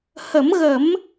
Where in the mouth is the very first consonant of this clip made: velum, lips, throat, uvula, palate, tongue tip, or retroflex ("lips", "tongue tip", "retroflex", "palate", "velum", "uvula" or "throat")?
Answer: throat